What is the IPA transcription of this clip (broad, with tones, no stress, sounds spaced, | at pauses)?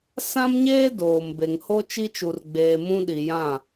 s ã˦ m ɲ eː˦ d oː˨ m b e˨ ŋ h o˦ t͡ʃ i˦ t͡ʃ u˨ r ɡ͡b eː˨ m ũ˦ ɗ i˨ j ã˦˨